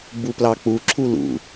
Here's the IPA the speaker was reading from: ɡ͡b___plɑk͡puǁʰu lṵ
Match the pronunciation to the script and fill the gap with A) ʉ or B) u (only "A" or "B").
B